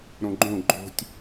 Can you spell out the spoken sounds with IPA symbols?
ɾ õ ɡ͡ǃ õ ɡ͡ǃ o̤ tʲ

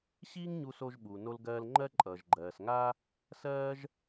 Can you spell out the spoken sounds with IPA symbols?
ɕ iː˥ ŋ ɲ u˧ s o˧ ʒ ɓ u˩ n o˧ l ɡ ɜː˧ l ŋ͡ǃ ɜ˥ ǃʼ ʌː˩ ʒ ɡ͡ǃ ɜː˩ s ŋ a˥ | s ɜː˥ ʒ

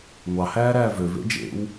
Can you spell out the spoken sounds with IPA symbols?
ŋʷ ɑ h æː ɾ æː v ø v ḛ d͡ʒ ḛ w

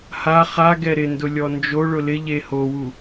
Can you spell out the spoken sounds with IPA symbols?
h a χ a ɡ ɛ ɾ ɪ n d ʊ lʲ ɔ n d͡ʒ o ɭ ʊ l ɪ ʎ e h o w u

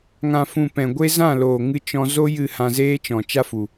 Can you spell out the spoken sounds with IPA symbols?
ŋ ã˨ f ũ˨ p ɛ̃˨ ɡʷ e˦ z ã˦˨ l oː˨ ŋ ɨ˧ t͡ʃ ɔ̃˧ z o˦ j ɨ˦˨ h ã˧ z eː˦ t͡ʃ ɔ̃˨ t͡ʃ a˦ f u˨

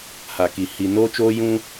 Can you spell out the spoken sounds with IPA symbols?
h a˨ k i˨ h i˨ n oː˦ t͡ʃ oː˦ j ũ˦

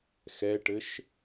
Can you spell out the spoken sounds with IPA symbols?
x ɛ ʈ ɘ ʃ

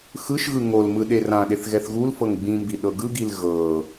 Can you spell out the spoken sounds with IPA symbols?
x ɯ ʃ ɣ ɯ ŋ o l m ɯ ɗ e r ã ɗ e θ ɣ ɛ θ ɣ u l f ɤ ŋ ɡ͡b ĩ m b i ɗ ɤ ɡ ɯ ɡ i l ɣ ɤ

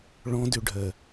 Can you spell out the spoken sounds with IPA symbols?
ɭ ɔ̃ d ø ɖʱ ɜ

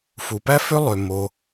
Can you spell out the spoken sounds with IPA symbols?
f u˩ p æ˥ f ø˥ lˠ ø˩ m o˩

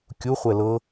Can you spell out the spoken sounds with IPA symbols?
kʲ u χʷ ɛ l ɤ

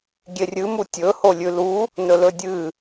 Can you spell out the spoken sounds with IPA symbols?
ɡʲ e rʲ ɨ m u tʲ ɵ h o lʲ ʉ l u | n ɵ l ɵ dʲ ɨ

